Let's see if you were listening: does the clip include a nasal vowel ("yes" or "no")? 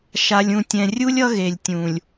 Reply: yes